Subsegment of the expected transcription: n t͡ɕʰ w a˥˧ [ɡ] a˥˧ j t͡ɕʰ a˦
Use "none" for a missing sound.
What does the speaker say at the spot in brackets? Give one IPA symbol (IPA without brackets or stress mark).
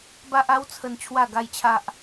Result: ɡ